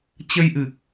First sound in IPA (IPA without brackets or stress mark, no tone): t͡ɕ